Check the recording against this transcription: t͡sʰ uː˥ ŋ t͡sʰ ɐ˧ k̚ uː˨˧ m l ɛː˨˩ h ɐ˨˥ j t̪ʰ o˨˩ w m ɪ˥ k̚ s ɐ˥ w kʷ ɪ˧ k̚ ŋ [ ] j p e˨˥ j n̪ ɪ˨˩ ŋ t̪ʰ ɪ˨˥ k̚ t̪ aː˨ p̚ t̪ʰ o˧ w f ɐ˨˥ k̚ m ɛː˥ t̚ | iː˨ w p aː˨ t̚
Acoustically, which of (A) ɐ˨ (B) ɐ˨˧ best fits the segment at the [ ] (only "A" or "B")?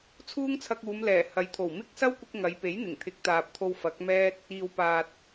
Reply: B